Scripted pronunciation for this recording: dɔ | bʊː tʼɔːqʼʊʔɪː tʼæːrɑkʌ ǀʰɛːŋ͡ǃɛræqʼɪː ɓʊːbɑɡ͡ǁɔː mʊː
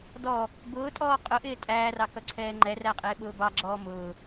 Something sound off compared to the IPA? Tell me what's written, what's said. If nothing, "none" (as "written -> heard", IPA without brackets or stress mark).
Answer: none